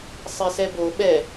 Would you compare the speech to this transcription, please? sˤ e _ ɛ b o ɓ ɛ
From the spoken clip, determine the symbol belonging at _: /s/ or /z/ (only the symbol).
s